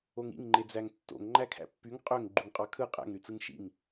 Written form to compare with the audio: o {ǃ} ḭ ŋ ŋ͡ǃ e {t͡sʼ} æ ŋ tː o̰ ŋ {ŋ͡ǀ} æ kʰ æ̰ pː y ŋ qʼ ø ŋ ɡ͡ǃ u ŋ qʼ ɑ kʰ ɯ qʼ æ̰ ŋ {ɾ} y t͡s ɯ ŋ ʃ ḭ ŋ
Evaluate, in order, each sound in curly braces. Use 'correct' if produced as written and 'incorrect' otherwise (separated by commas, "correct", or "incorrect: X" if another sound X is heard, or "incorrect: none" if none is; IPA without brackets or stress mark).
incorrect: ŋ, incorrect: d͡z, incorrect: ŋ͡ǃ, correct